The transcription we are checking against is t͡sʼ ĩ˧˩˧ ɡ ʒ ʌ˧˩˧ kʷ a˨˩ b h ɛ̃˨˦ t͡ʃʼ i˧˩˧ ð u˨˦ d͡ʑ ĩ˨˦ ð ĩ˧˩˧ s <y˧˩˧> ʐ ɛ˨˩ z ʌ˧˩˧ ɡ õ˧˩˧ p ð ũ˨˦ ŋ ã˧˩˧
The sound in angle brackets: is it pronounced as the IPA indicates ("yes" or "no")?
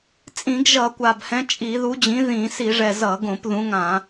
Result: no